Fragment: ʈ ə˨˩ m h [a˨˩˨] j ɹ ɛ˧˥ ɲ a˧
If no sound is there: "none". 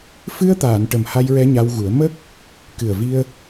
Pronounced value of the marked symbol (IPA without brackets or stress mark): a˧